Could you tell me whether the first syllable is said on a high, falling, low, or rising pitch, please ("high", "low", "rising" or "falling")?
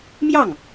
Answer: falling